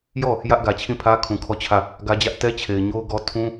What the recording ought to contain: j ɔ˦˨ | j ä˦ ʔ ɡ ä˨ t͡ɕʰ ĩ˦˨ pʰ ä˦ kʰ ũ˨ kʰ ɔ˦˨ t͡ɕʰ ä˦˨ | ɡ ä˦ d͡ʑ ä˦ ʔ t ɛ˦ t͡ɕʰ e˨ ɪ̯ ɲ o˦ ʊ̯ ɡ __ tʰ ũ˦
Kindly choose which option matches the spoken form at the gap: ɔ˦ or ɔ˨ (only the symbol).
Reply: ɔ˦